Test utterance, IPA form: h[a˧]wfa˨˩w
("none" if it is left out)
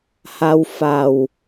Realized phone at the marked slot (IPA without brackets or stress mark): a˧